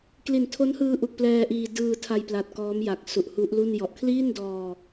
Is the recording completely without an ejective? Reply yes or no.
yes